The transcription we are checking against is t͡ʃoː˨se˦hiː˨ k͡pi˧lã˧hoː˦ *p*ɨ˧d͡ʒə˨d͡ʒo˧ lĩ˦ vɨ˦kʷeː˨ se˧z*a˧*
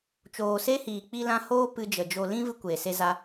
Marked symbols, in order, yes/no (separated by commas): yes, yes